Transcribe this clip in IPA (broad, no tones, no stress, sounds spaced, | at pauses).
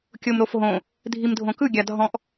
kʲ o m ɾ o f ɦ õ | dʱ i m dʱ õ k ɯ ɡʲ a dʱ ɔ̃ ʔ